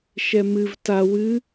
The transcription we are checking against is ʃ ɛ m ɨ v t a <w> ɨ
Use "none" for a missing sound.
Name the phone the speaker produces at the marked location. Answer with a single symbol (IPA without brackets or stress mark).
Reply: w